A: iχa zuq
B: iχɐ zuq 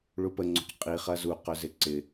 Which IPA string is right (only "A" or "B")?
B